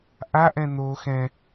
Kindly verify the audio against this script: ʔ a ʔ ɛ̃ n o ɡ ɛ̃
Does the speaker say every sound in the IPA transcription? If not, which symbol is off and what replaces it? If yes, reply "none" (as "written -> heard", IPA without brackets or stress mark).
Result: ɡ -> x